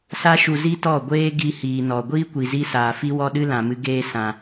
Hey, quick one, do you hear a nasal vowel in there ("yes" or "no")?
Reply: yes